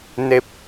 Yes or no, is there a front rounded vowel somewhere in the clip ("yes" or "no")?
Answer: no